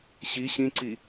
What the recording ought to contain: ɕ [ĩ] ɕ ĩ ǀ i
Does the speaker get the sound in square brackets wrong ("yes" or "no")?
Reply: yes